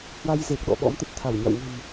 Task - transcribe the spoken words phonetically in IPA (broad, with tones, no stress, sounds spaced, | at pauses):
h w a˧ j z e˨˩ k̚ ɗ ɔ̰˧˨ ɓ ɔ̰˧˥ m t̪ ə˨˩ t̚ t̪ʰ a˧˩ w ɲ a̰˧˨ w ŋ ə̤˨˩ m